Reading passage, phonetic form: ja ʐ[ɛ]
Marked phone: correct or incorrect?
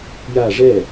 correct